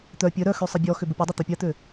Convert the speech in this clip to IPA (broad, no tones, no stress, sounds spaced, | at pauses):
t̪ œ pʲ œ ɾ œ x ø sˤ ɪ bʲ ɔ x ʏ b ʊ pʲ ɐ dˤ ɐ t̪ œ pʲ a t̪ ø